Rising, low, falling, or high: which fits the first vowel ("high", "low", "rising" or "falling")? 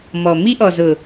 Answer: low